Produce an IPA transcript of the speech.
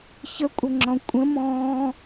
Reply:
çəkʷʼəŋ͡ǁɔ̃ kʷʼə̃mɔ̃ː

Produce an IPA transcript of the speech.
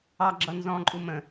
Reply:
ɑ ɡ͡ǁʌnzɔ̃ǃʼu mə̃

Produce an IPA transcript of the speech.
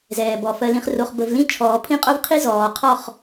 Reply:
zɛː˨bɔ˨ fɜ˨lĩ˨χro˨χ bə˨vlĩ˦ t͡ʃʰɔː˨pʰĩ˦qʼo˦vqʰi˦ zɔː˨ qʰɔ˦˨χ

